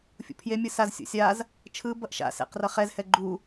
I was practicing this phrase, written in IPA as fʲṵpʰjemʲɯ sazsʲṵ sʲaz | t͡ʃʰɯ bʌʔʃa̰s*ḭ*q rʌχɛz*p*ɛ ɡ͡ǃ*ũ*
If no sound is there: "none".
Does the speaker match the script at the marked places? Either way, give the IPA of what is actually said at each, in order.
ḛ, h, u

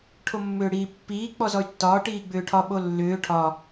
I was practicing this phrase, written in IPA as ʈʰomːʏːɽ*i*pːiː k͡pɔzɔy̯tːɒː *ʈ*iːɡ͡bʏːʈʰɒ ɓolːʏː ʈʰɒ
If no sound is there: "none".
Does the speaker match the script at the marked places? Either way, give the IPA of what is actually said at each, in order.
iː, ʈ

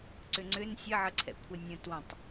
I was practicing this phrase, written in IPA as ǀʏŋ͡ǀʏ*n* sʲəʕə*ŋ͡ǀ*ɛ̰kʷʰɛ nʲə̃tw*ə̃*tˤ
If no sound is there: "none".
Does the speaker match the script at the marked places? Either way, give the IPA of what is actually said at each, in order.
n, ǀʰ, ə̃

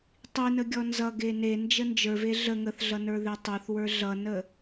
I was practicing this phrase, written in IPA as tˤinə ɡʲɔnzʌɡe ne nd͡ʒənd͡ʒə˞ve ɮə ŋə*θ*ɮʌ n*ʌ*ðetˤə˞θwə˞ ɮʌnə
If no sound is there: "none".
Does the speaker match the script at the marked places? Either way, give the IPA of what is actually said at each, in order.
θ, ə˞

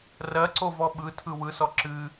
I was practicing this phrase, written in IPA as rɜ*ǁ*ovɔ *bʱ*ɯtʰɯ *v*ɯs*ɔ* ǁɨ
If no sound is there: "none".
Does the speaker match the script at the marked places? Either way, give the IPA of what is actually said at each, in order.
ǀ, ɓ, w, ɔ

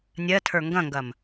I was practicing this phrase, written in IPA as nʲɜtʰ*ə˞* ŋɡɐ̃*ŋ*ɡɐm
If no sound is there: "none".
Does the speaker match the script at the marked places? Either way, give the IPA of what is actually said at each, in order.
ə˞, ŋ

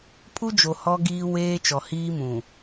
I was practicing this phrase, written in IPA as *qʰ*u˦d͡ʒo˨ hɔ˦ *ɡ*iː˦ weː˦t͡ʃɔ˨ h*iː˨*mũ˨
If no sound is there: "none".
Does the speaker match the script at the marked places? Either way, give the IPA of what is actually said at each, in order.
pʰ, ɡ, iː˦

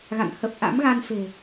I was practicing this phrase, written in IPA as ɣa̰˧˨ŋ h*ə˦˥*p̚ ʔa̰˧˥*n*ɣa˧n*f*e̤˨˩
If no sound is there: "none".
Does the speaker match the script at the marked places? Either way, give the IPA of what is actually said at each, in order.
ə˨˩, m, f

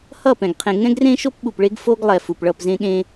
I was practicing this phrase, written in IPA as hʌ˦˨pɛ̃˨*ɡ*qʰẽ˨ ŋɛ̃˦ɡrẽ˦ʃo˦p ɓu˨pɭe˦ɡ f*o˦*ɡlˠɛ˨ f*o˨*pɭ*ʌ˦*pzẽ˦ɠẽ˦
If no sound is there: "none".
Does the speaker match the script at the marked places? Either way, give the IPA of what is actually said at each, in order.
ɡ, o˦, u˨, ʌ˦˨

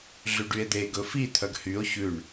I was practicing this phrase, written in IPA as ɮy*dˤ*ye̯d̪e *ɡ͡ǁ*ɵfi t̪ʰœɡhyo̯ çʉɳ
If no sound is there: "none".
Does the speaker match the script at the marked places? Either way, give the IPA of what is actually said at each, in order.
ɖ, ɡ

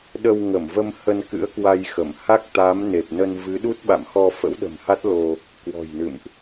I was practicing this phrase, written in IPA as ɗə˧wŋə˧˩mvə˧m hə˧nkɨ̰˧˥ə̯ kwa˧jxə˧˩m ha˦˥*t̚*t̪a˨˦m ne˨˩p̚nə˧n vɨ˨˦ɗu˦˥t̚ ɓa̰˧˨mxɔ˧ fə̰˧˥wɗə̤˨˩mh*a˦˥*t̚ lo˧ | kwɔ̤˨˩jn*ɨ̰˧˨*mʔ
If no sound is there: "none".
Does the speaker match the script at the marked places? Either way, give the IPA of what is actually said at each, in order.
k̚, a˦˥, ɨ̰˧˨

